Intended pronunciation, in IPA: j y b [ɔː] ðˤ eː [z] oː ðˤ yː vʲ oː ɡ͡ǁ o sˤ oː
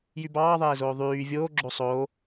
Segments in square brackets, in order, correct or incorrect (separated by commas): incorrect, correct